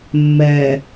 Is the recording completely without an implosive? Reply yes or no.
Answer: yes